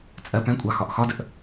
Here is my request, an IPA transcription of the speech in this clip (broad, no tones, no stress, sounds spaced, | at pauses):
t͡sʼ ɜ p ɛ̃ kʷʼ ɑ x ɒ ʔ x ɒ d ə ʔ